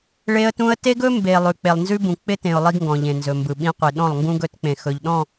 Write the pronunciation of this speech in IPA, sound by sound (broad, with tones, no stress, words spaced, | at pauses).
ɭe˦ə̯tũ˦ə̯ te˦ɡɵ˦ mbe˨ lˠʉ˨k͡pe˨lˠnzʉ˦bũ˨ k͡pɪ˦tẽ˨ʊ̯ lˠi˦ɡŋɡɔ̃˨ʎẽ˨ nzɵ˨mbɯ˨ɓĩ˦qʷi˨ ɗɔ̃˦˨lˠŋɡũ˦ɡɵ˦tk͡pẽ˨ xɵ˨ʎɗɔ̃˦˨